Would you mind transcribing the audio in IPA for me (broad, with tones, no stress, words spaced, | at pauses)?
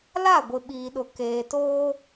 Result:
la˦˨ɡʷɪ˨ɓiː˨ɗʊ˨ keː˨toː˦